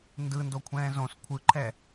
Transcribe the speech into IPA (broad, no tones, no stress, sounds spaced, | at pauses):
n d ɯ n d o kʷʰ ɛ̃ː z õ s kʷʰ ɯ ǃʰ ɛ